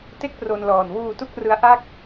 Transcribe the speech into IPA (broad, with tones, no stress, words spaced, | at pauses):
te˥˩k̚pro˧nlɔː˨˩n wuː˧tu˦˥k̚rɯ˦˥a̯ ʔa˥˩k̚